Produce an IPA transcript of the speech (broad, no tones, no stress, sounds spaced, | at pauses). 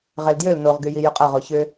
ʁ ɛ l d j ø l n o ʁ ɡ y j i j ʏ qʼ ɐ ʁ o ç ʏ